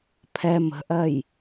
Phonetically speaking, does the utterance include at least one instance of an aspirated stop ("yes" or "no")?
yes